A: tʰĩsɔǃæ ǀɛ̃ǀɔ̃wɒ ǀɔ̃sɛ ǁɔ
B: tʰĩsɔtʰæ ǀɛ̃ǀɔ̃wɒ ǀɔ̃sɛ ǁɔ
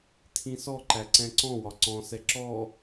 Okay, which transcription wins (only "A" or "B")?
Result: A